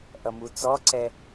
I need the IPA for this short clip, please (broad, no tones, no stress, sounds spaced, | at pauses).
ʔ ʌ m u t͡s ɔ ǀ ɛ